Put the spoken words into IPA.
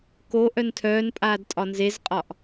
k o ʔ œ n tʰ œː n pʼ aː d tʼ ɒ n z e z qʼ ɒ ʔ

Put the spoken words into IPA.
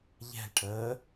ʎ ɛ̤ l ʈʰ əː

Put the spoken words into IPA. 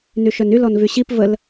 n y ʃ œ n y l ɔ n v y ɕ i p v ə l

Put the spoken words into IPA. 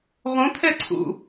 ʁ õ t̪ʰ ɛ ǀʰ ṵ

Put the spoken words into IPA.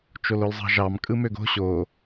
t͡ʃ o l o l zˤ ɑ̤ ʒ ɑ m kʼ ɯ m ø ɡ o̤ ɕ o

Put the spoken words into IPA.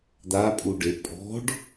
d̪ a pʼ u ɖ e pʼ ɔ̤ ɖ

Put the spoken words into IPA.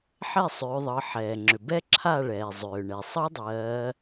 ħ ɛ˦˨ sˤ ʏː˩˧ ðˤ ɤ˩˧ ħ ɛː˩ ŋ͡ǁ ʏ˩ b ɛ˦˥ ǁʰ a˦˨ ɭ ɛː˩ zˤ ʏː˩ ɳ ɛ˩ sˤ ɤ˦˥ dˤ ɜː˩˧

